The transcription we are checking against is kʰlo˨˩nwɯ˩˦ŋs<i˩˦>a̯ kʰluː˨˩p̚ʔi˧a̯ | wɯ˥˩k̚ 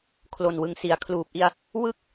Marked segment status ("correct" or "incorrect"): correct